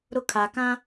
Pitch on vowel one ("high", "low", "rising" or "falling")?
high